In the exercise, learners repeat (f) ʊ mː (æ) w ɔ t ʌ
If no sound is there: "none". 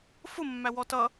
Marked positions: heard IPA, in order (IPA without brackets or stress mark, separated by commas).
f, æ